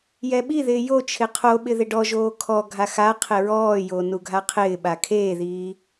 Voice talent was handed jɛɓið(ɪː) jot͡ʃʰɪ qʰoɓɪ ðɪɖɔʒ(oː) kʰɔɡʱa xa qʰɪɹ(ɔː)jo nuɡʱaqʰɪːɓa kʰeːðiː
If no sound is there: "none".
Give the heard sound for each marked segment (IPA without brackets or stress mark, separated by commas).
ɪː, oː, ɔː